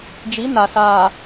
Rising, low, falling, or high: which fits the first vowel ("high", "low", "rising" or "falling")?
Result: rising